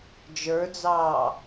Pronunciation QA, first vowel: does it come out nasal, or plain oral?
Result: oral